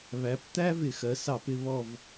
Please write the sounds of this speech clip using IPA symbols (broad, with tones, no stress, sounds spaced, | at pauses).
β æ˩˧ p t̪ æ˥ v ɪ˧˩˧ x ɜ˩˧ s ɑ˧˩˧ p ɪ˦˨ β ɔ˦˨ v